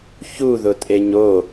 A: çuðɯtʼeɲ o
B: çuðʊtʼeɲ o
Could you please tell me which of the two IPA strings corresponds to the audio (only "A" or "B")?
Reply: B